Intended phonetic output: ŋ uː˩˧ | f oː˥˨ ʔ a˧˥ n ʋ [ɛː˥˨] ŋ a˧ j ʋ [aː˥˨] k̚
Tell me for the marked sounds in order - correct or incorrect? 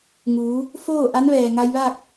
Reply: incorrect: ɛː˩, correct

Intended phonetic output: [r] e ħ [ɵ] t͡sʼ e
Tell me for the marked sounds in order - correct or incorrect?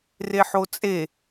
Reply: correct, incorrect: o

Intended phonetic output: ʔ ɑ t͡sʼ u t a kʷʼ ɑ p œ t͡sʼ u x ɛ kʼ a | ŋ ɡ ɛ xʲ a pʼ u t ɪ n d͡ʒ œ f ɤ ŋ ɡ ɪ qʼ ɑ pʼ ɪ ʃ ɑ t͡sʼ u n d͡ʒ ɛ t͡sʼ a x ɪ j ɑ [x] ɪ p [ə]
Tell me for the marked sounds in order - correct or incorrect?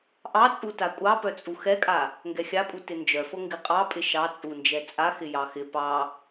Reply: correct, incorrect: ɑ

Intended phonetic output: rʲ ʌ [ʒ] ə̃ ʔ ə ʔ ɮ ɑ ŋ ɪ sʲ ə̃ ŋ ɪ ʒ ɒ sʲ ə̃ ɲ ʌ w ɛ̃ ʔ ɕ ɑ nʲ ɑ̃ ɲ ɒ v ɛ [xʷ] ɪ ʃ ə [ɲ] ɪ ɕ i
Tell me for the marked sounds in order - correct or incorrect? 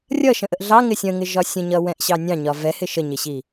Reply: incorrect: ʃ, incorrect: h, correct

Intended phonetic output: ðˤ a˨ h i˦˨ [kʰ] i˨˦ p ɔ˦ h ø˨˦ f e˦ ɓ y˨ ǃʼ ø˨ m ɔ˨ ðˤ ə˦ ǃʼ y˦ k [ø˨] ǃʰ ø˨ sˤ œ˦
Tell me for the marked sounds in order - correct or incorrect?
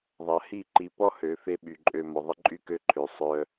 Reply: incorrect: ǃ, incorrect: ø˦

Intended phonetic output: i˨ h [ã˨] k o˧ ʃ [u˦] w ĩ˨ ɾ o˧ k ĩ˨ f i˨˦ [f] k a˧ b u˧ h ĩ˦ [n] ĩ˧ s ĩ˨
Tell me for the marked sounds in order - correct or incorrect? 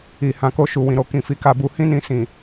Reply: correct, incorrect: u˨, incorrect: none, correct

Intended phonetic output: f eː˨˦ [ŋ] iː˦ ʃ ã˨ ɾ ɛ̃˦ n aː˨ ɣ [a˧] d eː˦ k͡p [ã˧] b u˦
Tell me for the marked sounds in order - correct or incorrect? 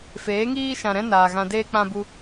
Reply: correct, incorrect: ã˧, incorrect: ã˦

